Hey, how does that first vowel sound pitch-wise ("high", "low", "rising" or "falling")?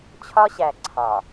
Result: high